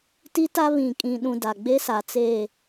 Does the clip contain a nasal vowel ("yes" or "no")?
yes